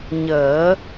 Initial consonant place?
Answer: palatal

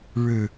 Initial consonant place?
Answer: retroflex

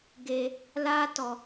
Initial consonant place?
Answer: velar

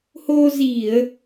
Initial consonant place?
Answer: glottal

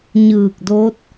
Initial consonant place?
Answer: palatal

